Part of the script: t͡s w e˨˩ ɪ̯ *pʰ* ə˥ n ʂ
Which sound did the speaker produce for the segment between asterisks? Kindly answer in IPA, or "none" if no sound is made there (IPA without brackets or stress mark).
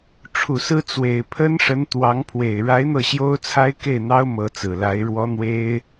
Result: pʰ